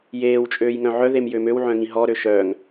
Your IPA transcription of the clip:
jeːwt͡ʃʼøːj ŋœ̃ʕœðem jømøwʕœ̃ ŋĩɦɔɾø ʃœŋ

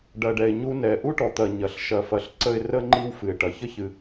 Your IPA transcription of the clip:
ɖɐ˩ɖɛ˩ɪ̯ɲu˦nɛ˩ ʔu˥ʈɔ˩t̪ɐ˨ ɲɐ˩ɬʃɐ˨fɐ˨ɬǀə˦ɪ̯ rə˥ŋ͡ǃi˦w fɨ˩ɪ̯ʈɐ˩çə˥çɨ˨

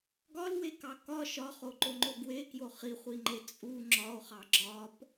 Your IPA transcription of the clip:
ɡɒlwekɑ kɒ ʃɒχoǃoŋ͡ǃo ɡwekjo χiχʷiŋ͡ǃe t͡sʼu ŋ͡ǁɒo̯χɑ ɡ͡ǁɒp

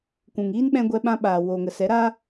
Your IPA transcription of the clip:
kʷũ˨ŋiː˦nɓɛ̃˧ ɡʷɛ˧ɓã˧ɓaː˨ wo˨ŋə˨sɛ˨˦ɾa˦

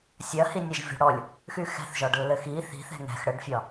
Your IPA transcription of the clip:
sʲɐhinʲɛʒvʲo̤ ɽɔlʲ | xyxɛ̤θʒɒɖ lːɘxi θi̤θɛ̤ ŋɛ̤x ɽəɖfʲɒ

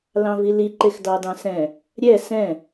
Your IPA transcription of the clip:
lɑ̃vili ǃexdɑdɑ̃sɛ̃ | ɾʲɛ sɛ̃

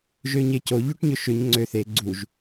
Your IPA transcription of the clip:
ʒøɲeco ʎoʈɲɵʃøɲ ŋ͡ǀø θe ɡ͡ǀuʒ

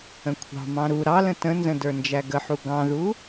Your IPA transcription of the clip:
ə̃kʷʰɑ̤mɑ̃ ɾu ɾɑlə̃ tə̃nzə̃ də˞nd͡ʒæɡəħu ɡɑ̃ðu

